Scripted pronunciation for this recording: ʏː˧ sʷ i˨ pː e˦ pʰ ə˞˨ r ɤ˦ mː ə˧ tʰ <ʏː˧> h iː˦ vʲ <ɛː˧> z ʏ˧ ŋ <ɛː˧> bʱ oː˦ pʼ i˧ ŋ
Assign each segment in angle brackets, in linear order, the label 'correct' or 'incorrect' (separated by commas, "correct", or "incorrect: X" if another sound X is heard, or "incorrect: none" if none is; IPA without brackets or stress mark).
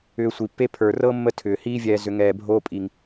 incorrect: ʏː˨, correct, correct